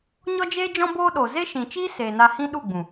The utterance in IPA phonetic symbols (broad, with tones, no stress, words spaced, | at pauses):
ɲɔ˦d͡ʒeː˦d͡ʒɔ̃˦ boː˦ɗo˨ ze˦ʃĩ˨t͡ʃiː˦ seː˨na˧hĩ˦ ɗu˦˨ɡ͡bũ˨